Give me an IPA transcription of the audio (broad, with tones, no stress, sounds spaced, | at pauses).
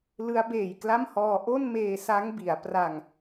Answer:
l ɯ˦˥ a̯ b eː˨˩ j k l a˥˩ m h ɔː˧ ʔ o˥˩ n m eː˧ s a˦˥ ŋ b i˩˦ a̯ p r a˧ ŋ